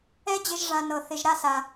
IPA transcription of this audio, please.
ɛ˦ d͡ʑ ɪ˧ ʒ ʐ ã˨ n ɤ˨ θ ɪ˧ ʒ ɾ a˦ s a˧

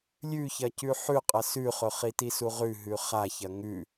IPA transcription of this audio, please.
lʲ ʉ ç ɐ c ʉ ħ ʉ qʼ ɐ s ʉ χ ɵ χ i t i s u ʁ ʉ ɦ ʉ χ a ç ɐ ŋ ʉ

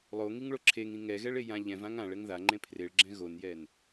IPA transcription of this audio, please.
lˠ o ŋ i ŋ ɭ o ǁʰ e ŋ ĩ ŋ ɛ ɣ ɛ ɭ e j ã ʎ ɛ̃ v ã ŋ ã ɭ ɛ ŋ ð a ŋ͡ǃ ẽ pʰ r e ɭ ɡ͡ǁ ɛ̃ ɣ o n j ɛ n

